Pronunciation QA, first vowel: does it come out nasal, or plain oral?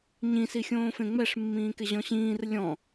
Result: nasal